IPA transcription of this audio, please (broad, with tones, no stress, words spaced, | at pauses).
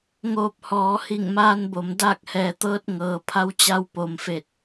ŋoː˧p̚hɔː˩˧hi˧˩ŋ maː˧nbo˩m daː˥˨k̚hɛː˩t̪ɤː˧˥t̚ ŋɤː˩pʰa˧˥w t͡ɕa˧wpo˩mfe˧˩t̚